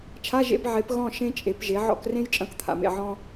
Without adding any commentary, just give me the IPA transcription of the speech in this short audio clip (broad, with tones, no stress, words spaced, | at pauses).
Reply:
t͡ʃʰa˧˥˧ʒḛ˧˥˧b ʕe˩˥p ɣɔ̃˥˨ ʃẽ˥t͡ʃʼe˩˥pʒe˩˥ ʕɔ̰˥˨k rẽ˥j t͡ʃʼɐ̃˥˨kt̪ʰa̰˨mḛ˥˨ ʕɔ̃˥